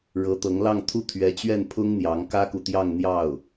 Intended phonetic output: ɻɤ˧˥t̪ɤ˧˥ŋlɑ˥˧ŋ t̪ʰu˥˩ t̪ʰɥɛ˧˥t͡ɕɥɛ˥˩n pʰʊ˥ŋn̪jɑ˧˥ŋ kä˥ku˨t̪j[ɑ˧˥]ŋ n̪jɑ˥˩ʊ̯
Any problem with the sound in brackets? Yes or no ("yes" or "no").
yes